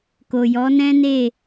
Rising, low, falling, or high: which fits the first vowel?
low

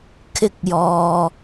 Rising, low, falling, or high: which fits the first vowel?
high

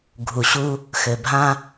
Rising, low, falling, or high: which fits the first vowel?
low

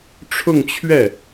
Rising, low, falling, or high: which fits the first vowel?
falling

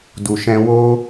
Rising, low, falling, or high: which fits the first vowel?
low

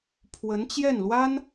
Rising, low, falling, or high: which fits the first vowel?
rising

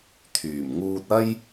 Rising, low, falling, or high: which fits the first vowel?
low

